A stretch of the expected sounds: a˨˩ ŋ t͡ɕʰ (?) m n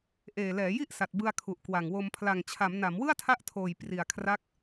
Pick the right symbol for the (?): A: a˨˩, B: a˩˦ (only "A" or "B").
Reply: B